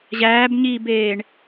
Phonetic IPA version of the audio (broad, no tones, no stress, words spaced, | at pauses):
ʑæːbɲiːbeːɳ